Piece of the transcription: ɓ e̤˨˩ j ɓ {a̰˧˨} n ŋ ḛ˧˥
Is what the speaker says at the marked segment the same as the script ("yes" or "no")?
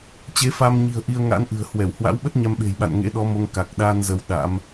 yes